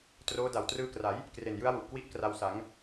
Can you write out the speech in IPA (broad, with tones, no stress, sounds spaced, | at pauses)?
t r oː˦˥ d a˨˩ w t r ɯː˧ k r a˩˦ j | k r e˨˩ n j ɯ˦˥ a̯ w u˨˩ ʔ k w i˦˥ ʔ k r a˧ w s a˩˦ ŋ